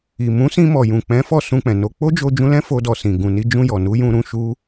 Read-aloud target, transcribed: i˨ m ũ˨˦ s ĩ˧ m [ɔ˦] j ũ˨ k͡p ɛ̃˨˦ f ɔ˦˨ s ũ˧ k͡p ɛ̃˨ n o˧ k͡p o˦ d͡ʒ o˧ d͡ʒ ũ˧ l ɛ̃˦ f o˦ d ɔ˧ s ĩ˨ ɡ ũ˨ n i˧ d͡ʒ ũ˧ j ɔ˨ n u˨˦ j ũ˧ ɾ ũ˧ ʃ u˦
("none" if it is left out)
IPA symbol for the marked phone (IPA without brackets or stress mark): ɔ˨